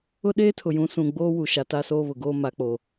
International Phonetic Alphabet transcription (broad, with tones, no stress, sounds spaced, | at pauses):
ʊ˦ ɗ eː˦ tʰ ʊ˨ j ũ˨˦ s ũ˨ ɡ͡b oː˦ w u˨ ʃ a˨ t a˦ s oː˦ β ʊ˨ ɡ oː˦ m a˨˦ k͡p o˨